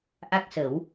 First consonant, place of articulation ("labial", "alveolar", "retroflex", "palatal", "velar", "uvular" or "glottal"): glottal